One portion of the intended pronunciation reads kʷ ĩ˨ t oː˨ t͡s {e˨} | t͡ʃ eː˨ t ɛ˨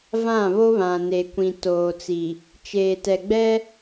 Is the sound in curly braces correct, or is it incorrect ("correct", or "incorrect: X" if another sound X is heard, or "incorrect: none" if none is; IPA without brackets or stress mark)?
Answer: incorrect: i˨